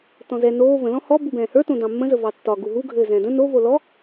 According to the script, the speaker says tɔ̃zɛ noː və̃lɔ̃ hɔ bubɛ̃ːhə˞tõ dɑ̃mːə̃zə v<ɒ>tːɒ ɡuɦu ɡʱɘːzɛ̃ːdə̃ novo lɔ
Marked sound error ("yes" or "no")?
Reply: yes